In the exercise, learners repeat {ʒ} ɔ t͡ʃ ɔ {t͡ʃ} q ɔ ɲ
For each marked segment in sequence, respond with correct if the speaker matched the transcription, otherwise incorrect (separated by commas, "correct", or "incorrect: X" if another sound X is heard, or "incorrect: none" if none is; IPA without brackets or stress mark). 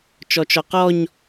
incorrect: t͡ʃ, incorrect: none